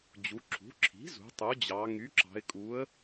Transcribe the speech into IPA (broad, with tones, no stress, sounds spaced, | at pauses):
d͡ʑ u˩˧ ǁʰ ṳ˩˥ ǁʰ i̤˩˥ z ṳ˩˧ tˤ u˩˥ d͡ʑ ɑ˩˧ ŋ y˩˥ ǁ ɑ̤˩˧ ɪ̯ kʼ u˩˥ ə̯